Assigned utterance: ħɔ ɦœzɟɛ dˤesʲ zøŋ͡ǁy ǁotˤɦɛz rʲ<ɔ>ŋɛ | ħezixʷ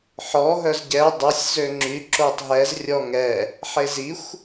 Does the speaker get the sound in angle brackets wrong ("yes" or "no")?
no